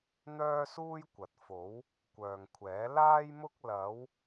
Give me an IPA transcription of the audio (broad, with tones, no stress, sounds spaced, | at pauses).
n̪ œː˥ s uː˥ j kʷ ɐ˨ t̚ f o˨˥ w | kʷ œː˨ ŋ kʷʰ ɛː˨˥ l aː˥ j m ʊ˥ k̚ l ɐ˨˧ w